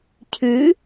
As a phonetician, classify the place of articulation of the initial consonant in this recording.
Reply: palatal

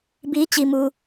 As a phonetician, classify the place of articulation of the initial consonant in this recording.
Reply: labial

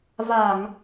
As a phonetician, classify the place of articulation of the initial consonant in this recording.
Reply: labial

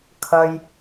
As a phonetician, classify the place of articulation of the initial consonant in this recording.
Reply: velar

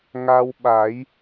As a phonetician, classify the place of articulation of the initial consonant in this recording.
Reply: velar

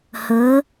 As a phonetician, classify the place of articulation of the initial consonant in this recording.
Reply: glottal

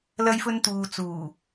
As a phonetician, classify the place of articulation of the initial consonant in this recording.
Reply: alveolar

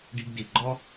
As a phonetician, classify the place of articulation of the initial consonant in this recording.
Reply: retroflex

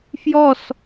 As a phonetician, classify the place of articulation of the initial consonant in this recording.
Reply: labial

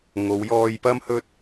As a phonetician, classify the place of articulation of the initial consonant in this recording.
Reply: velar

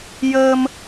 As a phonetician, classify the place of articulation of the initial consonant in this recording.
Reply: palatal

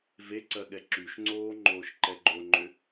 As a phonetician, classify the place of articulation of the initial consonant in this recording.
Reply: labial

